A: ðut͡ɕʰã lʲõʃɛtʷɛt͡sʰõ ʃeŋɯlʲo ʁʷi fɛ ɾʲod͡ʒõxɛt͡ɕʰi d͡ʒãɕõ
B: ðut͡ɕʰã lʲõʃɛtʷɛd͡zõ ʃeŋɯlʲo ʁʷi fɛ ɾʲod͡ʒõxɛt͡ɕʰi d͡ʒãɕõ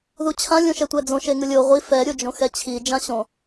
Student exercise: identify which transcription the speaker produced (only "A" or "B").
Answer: B